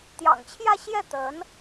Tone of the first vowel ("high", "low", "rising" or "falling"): low